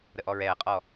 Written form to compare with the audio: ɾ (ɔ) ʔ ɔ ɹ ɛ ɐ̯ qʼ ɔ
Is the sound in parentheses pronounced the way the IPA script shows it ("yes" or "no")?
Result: no